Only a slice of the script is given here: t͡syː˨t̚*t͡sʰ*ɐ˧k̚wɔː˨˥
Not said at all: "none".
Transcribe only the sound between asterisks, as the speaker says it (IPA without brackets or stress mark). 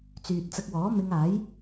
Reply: t͡s